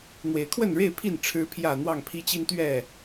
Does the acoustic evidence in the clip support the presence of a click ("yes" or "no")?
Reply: no